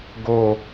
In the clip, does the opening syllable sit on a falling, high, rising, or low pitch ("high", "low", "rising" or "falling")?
falling